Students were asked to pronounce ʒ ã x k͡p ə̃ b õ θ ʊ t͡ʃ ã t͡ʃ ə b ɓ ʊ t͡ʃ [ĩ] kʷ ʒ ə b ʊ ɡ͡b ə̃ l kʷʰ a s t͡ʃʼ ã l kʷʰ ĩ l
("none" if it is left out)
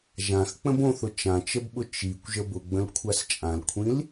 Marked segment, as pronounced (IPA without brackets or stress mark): i